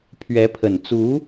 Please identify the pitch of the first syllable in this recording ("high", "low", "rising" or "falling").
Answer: rising